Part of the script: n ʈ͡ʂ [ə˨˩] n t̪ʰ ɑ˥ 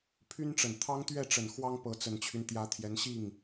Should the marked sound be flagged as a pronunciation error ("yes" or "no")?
no